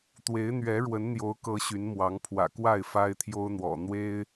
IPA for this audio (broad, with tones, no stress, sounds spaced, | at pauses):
t̪ w e˨˦ ɪ̯ n̪ ɥ ɛ˨˦ ɻ w ə˨˦ n n̪ j o˨˦ ʊ̯ k ɤ˨˦ ɕ y˨˦ n m w ɑ˨˦ ŋ pʰ w ä̰˨˩ k w a˥˨ ɪ̯ f a˦ ɪ̯ t̪ʰ j o˦ ʊ̯ n̪ w ɔ̰˨˩ n̪ w e˦ ɪ̯